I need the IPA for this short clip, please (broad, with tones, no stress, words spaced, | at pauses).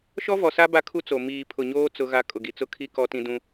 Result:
ʃɔ˦vɔ˨sa˦ ba˦kʰu˦t͡so˨ miː˨ pʰʊ˨ɲoː˦ t͡sʊ˦ɣa˦ kʼʊ˨ɡi˨t͡sʊ˦kʰi˦ kɔ˦tĩ˦dũ˦